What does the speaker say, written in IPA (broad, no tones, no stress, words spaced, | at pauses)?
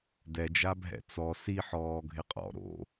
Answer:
dɛd͡ʒa bʱɛ̰t͡sɔ siħɔː ɡʱɪqʼɔ̰ ɾo̰